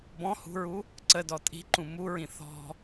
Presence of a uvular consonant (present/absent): absent